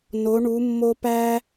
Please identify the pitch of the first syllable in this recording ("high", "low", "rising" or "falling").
rising